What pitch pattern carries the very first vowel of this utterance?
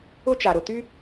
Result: high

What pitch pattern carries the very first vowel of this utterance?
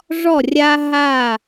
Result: falling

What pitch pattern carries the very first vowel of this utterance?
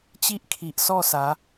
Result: high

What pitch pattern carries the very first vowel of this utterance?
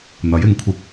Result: rising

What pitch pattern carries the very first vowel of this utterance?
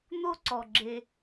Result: high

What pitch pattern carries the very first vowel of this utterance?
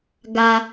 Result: low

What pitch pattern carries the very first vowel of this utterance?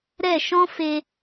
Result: falling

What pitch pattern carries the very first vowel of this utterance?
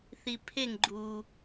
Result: low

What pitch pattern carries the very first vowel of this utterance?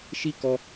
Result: high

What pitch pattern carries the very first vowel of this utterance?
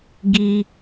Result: high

